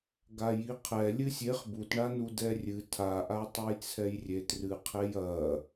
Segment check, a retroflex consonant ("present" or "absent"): present